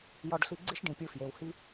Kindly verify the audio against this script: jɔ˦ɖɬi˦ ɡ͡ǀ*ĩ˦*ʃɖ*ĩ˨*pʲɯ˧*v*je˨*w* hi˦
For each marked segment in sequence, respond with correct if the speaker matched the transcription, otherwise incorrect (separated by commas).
incorrect, correct, incorrect, correct